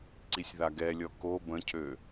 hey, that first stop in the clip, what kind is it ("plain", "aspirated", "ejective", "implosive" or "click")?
click